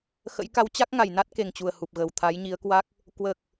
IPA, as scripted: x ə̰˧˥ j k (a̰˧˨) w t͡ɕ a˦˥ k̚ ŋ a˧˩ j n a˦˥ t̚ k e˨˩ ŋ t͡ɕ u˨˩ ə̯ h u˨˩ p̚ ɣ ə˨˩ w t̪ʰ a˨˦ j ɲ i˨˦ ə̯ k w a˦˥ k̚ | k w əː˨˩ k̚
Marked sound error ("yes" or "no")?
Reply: yes